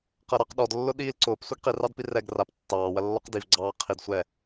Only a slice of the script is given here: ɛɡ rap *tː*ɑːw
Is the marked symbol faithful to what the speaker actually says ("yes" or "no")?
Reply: yes